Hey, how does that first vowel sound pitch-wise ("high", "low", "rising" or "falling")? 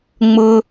low